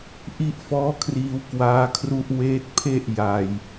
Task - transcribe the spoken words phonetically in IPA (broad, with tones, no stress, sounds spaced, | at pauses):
ʔ i˦˥ ʔ f ɔː˦˥ kʰ r iː˧ w k w aː˦˥ kʰ r u˦˥ ʔ w eː˦˥ t̚ pʰ e˥˩ ʔ j a˧ j